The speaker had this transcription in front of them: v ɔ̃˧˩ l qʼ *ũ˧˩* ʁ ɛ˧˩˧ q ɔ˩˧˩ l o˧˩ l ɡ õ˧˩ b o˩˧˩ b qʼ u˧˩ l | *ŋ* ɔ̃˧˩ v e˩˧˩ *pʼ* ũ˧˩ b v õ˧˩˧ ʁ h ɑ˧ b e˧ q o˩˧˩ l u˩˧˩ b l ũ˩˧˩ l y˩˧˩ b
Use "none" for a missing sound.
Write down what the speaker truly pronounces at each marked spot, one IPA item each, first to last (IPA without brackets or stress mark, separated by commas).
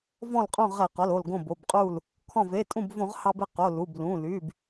õ˧˩, kʰ, tʼ